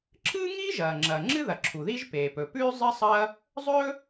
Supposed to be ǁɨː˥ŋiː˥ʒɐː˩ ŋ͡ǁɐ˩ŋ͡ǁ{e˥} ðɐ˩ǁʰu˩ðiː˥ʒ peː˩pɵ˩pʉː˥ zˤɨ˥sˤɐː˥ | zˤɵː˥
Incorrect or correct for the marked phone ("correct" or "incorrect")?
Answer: incorrect